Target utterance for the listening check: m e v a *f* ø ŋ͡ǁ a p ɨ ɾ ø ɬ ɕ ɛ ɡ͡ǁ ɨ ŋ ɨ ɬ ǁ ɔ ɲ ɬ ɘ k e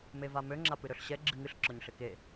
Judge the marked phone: incorrect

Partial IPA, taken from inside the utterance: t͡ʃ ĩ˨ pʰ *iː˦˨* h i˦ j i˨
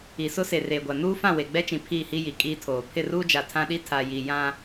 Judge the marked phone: correct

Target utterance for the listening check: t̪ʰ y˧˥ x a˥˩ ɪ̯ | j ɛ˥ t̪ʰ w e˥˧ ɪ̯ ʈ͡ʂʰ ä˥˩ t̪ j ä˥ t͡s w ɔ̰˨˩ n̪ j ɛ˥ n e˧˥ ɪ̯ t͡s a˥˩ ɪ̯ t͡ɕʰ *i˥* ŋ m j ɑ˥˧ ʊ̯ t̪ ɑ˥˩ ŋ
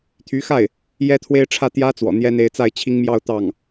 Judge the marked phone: correct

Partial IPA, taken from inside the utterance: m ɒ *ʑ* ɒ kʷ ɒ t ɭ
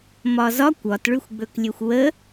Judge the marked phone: incorrect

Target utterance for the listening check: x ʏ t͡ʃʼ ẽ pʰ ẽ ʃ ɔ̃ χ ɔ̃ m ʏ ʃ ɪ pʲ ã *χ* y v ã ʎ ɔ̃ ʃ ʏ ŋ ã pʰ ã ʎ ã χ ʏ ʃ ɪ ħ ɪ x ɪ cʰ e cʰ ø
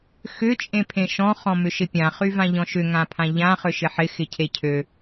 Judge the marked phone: correct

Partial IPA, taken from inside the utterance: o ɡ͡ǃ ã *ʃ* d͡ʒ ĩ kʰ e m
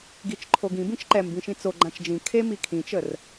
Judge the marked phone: incorrect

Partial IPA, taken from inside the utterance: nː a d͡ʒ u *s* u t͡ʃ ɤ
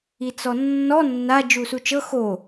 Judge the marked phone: correct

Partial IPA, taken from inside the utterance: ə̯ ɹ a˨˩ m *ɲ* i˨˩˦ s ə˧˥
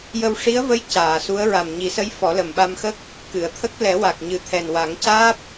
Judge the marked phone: correct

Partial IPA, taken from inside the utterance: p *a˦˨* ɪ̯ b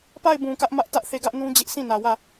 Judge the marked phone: correct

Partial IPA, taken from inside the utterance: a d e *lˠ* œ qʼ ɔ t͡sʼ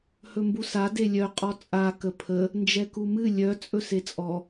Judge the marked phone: incorrect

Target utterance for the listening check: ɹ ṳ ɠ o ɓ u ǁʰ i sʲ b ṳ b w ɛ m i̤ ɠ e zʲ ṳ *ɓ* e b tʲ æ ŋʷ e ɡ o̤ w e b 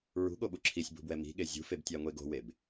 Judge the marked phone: incorrect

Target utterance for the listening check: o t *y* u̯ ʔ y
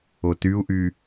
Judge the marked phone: correct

